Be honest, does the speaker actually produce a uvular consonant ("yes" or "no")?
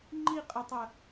yes